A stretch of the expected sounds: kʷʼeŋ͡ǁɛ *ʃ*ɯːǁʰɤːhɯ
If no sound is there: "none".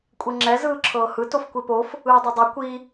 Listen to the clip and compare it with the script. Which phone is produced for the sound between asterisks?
z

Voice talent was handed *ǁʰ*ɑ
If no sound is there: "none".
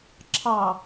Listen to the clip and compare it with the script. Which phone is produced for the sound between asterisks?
ǁʰ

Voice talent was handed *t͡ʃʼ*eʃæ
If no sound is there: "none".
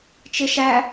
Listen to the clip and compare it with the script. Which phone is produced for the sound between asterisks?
t͡ʃ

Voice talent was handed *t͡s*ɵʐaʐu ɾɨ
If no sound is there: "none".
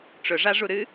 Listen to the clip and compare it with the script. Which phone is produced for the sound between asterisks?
ʈ͡ʂ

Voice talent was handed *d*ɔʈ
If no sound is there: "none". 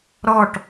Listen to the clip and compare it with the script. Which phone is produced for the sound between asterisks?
ɾ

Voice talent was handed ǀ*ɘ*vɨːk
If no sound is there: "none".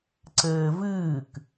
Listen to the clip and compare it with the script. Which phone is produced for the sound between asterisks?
ɘː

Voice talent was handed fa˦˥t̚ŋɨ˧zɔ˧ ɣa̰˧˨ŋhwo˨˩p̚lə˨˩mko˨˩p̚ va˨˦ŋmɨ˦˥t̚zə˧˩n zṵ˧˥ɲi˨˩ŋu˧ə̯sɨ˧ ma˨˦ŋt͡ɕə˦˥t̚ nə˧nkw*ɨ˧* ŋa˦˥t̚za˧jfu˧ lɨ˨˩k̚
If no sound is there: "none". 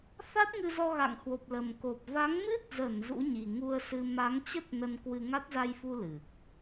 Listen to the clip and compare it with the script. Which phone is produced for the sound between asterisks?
ɨ˧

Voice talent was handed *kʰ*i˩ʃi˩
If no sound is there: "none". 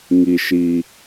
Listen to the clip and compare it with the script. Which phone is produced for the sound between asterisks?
ŋ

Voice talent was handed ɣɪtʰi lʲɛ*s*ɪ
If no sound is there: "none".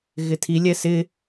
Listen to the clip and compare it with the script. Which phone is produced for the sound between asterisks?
s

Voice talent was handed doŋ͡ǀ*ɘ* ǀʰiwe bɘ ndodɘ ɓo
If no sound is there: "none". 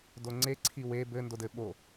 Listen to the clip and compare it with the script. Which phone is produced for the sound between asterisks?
e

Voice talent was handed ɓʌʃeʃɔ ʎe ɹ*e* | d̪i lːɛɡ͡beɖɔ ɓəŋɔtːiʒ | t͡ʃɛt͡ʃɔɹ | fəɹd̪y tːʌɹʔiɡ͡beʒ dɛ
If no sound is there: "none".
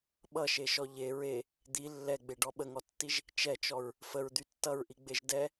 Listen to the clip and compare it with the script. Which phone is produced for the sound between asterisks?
e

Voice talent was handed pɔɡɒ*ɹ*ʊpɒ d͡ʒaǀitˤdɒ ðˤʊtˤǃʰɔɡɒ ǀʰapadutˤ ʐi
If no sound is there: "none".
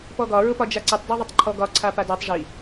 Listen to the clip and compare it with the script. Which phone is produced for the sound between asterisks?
ɹ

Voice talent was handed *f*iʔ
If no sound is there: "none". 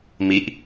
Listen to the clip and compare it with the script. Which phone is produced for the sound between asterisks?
m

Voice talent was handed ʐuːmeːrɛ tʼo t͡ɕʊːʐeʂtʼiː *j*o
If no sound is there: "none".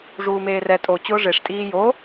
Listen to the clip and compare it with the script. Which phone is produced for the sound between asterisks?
j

